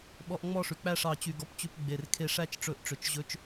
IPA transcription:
ɓ ɔ˧ ʔ ŋ͡m ɔ˥˨ ʂ ʉ˩ k͡p æ˥˨ ʂ ɑ˧˩ t͡ɕ y˧˩ ɡ ɔ˧ p t͡ɕ ʉ˧ p ɡ͡b e˩ r kʰ e˧˩ ʂ æ˥˨ t͡ʃ ʈ͡ʂ ɵ˧˩ ʔ ʈ͡ʂ ø˩ t͡ʃ ʑ ɵ˧ t͡ʃ

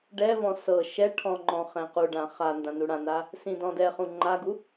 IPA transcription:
ɖ ɛ v ɔ̃ s ɤ ʃ ɛ ʈʰ ɔ̃ ŋ͡ǃ ɔ̃ χ ɛ̃ q u ɖ ã χ a n d ã n u ɽ ã n a | s ĩ d ɔ̃ d ɛ χ ũ ŋ͡ǃ a ɡ u

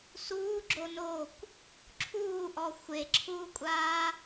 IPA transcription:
s uː ɡ͡ǁ o n oː kʷ | ǁʰ uː ʔ ɔ xʷ e ǁʰ uː kʷʼ aː

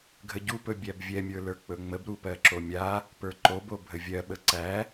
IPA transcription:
ɡʱ ə ɟ u p ɵ bʲ æ b vʲ ɛ mʲ ə˞ l ə˞ k͡p ɵ ŋ͡m ə b ɾ u p ɜ ǁ o mʲ a | p ə˞ ǃ o b o bʱ ə vʲ ɜ ɓ ə ǀ æ

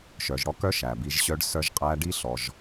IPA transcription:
ʃ œ˨ ʒ ɽ ɔ˦ k œ˦ ʃ æ˨ b i˧ ʒ ɕ œ˧ ɖ s œ˧ ʒ qʼ æ˧ ɖ i˦ ɬ ɔ˧ ʒ

